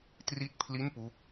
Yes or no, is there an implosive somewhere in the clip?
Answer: no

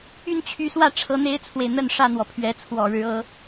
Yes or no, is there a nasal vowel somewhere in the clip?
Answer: no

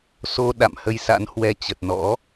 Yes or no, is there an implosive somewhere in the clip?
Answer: yes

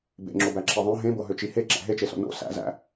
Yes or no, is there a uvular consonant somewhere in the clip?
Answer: no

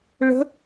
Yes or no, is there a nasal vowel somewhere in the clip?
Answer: no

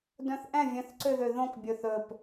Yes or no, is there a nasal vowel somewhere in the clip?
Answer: yes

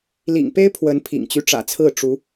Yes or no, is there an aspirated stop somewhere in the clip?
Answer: yes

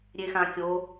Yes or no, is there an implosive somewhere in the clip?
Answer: no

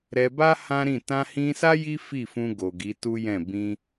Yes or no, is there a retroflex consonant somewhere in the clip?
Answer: no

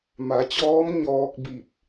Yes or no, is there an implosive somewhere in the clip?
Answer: no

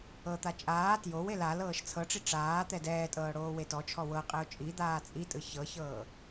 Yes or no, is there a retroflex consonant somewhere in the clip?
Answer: yes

